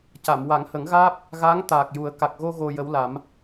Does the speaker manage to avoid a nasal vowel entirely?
yes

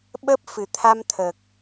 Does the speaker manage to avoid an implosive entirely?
no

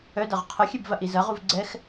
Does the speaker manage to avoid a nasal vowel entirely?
yes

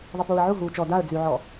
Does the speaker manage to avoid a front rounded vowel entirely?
no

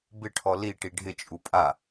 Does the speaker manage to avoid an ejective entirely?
no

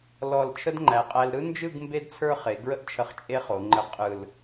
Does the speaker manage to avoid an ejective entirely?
no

